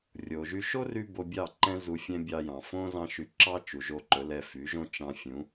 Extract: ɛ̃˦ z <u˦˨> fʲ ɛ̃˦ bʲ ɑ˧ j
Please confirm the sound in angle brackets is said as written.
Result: no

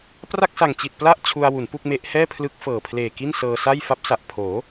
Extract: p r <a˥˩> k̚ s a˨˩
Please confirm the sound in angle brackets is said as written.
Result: yes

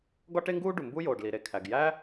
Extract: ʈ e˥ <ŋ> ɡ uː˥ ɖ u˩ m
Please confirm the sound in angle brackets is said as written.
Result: yes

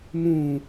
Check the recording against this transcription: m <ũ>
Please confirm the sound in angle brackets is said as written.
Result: yes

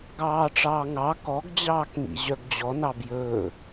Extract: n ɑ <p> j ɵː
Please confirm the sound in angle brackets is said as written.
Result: no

